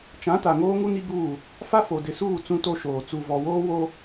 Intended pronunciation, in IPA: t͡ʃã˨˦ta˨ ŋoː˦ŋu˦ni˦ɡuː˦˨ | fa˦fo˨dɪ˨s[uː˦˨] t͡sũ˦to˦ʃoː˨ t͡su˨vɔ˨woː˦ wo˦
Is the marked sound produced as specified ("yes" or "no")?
yes